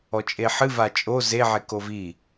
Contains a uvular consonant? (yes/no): no